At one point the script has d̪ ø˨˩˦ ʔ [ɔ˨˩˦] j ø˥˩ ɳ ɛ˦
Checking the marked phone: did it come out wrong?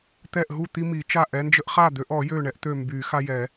no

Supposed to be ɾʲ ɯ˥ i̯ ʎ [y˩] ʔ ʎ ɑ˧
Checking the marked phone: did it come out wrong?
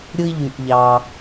yes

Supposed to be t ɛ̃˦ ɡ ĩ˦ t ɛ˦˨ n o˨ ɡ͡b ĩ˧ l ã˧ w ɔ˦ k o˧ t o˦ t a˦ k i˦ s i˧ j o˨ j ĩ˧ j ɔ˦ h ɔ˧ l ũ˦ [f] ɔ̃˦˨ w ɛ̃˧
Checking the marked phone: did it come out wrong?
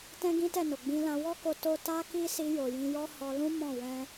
yes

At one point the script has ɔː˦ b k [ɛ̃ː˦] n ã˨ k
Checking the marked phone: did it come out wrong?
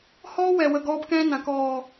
no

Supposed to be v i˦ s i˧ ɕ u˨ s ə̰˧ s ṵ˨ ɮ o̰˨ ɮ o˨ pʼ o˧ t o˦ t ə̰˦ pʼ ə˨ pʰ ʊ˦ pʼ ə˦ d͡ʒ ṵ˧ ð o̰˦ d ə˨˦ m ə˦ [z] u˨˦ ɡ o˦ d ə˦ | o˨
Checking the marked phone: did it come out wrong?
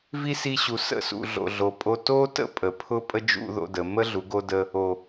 yes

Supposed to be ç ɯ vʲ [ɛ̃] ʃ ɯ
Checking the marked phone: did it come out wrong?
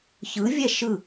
yes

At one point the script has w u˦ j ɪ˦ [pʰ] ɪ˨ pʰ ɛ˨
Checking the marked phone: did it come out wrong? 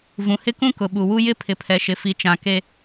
no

